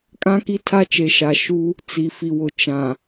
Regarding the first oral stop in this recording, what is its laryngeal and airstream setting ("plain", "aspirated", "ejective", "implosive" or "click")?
ejective